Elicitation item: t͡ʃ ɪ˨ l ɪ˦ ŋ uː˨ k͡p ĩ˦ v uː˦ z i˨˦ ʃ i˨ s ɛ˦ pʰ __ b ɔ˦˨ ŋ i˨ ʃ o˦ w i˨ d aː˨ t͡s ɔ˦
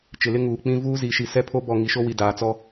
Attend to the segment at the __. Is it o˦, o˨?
o˦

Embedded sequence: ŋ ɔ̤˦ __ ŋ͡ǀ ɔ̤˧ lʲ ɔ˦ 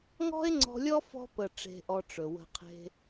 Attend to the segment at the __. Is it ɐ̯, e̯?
e̯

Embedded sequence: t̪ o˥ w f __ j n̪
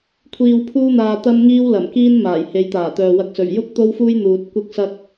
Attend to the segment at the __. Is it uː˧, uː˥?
uː˥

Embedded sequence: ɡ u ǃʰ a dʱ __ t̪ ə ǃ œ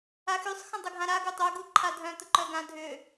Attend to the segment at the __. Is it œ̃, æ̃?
œ̃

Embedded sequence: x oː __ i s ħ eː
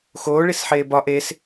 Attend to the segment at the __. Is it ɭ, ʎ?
ɭ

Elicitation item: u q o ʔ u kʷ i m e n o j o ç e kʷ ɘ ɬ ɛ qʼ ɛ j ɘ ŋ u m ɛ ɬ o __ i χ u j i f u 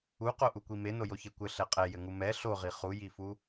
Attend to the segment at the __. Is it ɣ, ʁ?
ʁ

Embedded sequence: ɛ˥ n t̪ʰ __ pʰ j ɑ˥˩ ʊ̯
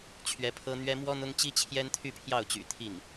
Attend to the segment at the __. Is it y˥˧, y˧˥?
y˥˧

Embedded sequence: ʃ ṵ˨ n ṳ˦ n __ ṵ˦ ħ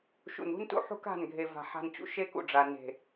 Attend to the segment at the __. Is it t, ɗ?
t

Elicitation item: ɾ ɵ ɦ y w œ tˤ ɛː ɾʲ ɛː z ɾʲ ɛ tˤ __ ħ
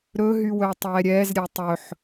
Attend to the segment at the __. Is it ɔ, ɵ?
ɵ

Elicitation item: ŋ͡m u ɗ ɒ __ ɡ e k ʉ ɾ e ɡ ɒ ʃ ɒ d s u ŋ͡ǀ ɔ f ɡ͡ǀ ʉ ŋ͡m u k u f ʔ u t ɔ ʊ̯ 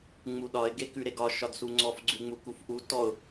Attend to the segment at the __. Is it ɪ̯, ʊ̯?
ɪ̯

